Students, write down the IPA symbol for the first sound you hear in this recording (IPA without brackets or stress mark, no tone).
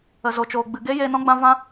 ə